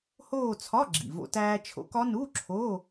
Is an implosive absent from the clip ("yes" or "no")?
yes